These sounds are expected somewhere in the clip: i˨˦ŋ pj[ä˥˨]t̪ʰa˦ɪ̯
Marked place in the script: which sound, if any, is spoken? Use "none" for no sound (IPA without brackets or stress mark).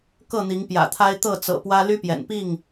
ä̰˨˩